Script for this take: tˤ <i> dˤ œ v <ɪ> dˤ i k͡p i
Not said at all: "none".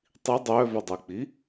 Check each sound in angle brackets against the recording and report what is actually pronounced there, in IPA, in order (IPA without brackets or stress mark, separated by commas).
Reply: i, ʏ